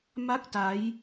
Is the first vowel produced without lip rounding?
yes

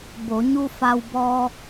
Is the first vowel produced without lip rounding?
no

